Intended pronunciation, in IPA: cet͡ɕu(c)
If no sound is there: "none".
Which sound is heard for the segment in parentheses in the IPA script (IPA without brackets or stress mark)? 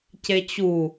none